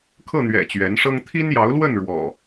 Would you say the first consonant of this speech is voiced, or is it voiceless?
voiceless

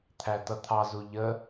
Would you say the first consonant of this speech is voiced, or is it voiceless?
voiceless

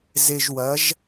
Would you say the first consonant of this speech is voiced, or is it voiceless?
voiced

